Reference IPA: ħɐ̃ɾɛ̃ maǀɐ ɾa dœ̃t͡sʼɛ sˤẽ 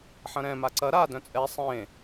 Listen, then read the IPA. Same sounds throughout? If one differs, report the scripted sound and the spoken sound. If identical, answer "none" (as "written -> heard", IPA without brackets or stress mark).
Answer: none